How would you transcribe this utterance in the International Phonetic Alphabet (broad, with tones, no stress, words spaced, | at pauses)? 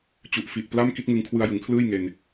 t͡ɕu˨˩ʔ fi˨˩ʔpla˥˩m ki˥˩t̚ŋɯ˧ŋ kʰwɯ˧a̯jɯ˩˦ŋkʰlɯː˥˩j ŋe˧n